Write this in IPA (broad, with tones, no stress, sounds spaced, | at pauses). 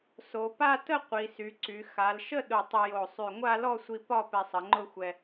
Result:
s o˩˧ p a˥˧ t ə˥˧ qʷ i˩˧ s y˩˧ ǀ y˩˧ x a˩˧ l ʃ ə˥˧ ɗ ʊ˧ tˤ ə˧ j o˧˩ sˤ y˧˩ ŋʷ a˥˧ l ɔ˥˧ sʷ i˧ p ɒ˥˧ p ɛ˧ sˤ ə˩˧ ŋ͡ǃ ʊ˥˧ xʷ ɛ˧